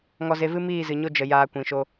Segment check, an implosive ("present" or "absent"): absent